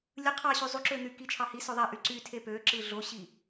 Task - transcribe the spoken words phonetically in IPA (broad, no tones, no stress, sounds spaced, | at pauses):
lʲ ɯ qʰ ɑ ɕ y zˤ u ǁ ø n̪ y k i t͡ʃʰ ɑ h i s ø ðˤ æ ʔ y ǀ y tʰ e p ø ǁ ɯ ɮ o ɕ i